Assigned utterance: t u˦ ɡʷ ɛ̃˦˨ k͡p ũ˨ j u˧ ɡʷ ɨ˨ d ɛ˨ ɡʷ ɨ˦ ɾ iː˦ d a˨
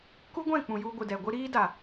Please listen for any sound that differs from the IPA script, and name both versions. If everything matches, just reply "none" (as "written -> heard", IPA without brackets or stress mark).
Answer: t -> k